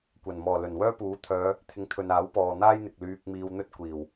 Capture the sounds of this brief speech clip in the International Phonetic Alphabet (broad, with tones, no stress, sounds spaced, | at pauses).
kʷ ɐ˨˩ n m ɔː˨˩ l ɵ˨˩ n w œː˥ p uː˨˥ t̪ʰ œː˨˧ | t̪ʰ ɪ˨˥ ŋ t̪ʰ ɵ˨ n aː˨˥ w p ɔː˨ n̪ aː˥ j n̪ ɪ˨ k̚ l yː˧ k̚ m iː˧ w n̪ ɵ˥ t̚ kʷ iː˨˩ w